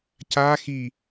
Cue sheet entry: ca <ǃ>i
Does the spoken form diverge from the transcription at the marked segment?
yes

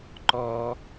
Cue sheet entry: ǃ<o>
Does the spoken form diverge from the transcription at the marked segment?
yes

